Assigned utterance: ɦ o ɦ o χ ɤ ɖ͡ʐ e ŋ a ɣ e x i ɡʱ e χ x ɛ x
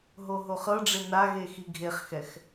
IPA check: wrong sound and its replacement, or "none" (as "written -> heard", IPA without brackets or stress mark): ŋ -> n